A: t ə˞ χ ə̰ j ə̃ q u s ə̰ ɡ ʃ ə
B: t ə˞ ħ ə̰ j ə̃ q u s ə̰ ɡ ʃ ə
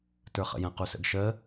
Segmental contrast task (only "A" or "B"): A